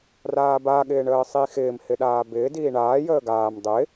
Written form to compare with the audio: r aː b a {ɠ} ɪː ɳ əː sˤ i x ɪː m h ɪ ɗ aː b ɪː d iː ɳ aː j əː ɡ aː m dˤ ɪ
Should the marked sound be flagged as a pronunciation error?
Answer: no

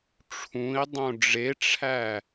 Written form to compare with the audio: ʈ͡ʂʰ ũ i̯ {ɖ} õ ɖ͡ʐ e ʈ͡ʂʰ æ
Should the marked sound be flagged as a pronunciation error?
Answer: yes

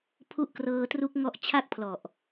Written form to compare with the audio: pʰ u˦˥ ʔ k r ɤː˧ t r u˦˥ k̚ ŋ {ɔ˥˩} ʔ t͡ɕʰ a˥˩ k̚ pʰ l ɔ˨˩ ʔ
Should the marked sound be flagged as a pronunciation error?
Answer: no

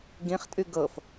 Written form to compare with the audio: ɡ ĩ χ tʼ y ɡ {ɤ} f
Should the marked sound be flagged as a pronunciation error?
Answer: no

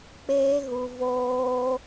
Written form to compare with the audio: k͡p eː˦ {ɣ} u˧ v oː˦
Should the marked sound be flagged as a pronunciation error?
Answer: no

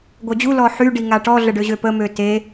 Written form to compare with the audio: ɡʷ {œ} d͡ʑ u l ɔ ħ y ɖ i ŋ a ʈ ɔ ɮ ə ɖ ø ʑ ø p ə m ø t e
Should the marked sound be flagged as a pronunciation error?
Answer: no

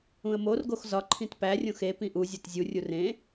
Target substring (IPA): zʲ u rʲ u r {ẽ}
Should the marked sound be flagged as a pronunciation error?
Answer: no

